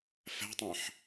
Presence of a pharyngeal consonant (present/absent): present